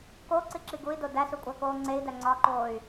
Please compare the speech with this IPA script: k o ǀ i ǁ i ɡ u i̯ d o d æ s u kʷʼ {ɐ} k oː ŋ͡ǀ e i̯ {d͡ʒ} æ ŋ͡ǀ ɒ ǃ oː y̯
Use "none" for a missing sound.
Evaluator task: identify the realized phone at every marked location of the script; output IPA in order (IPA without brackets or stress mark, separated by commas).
æ, d